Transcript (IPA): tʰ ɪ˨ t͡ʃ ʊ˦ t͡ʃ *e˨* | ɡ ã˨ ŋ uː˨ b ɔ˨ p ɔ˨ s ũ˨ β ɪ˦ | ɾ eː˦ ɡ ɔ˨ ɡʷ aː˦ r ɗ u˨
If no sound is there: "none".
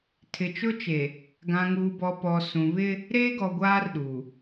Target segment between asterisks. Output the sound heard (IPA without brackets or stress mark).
e˨